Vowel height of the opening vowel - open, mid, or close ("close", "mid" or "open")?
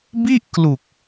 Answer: close